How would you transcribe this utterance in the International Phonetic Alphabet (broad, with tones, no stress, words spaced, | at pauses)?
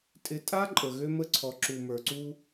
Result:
tʼɪ˨tʼa˦ ǃʼə˨ɣø˦mə˦ǀʰɔ˨ ǁu˨mə˞˨ǀu˦